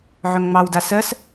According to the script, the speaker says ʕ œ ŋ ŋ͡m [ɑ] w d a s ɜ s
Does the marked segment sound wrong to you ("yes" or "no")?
no